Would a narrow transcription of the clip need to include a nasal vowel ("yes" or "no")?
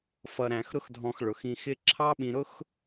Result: yes